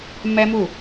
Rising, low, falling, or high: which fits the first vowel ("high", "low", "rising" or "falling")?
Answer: high